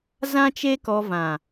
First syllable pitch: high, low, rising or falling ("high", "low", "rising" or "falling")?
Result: high